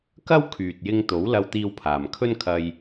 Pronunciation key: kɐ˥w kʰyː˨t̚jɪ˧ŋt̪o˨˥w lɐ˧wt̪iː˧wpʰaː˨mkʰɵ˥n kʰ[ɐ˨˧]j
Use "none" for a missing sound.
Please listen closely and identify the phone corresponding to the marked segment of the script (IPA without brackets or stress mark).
ɐ˧